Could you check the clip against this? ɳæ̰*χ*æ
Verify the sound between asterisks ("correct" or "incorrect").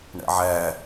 incorrect